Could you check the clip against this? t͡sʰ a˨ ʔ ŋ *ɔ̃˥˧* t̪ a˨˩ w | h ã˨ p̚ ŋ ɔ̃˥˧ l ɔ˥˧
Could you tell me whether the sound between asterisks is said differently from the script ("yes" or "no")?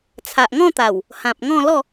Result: no